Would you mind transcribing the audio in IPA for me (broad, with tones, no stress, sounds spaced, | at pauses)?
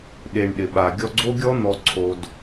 ɗ e˨ ɳ ɗ ɪ˨ ɓ a˨ ɡʲ ɔ˧ ɡ͡ǀ o˦ ɡʲ ɔ˦ n̪ ɔ˧ ǀʰ o˧ d